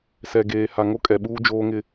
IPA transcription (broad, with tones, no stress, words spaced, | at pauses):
sɛ˨ɡeː˨ ha˨ŋo˦kʼɛ˨ɓuː˦ d͡ʒoː˦ŋɪ˦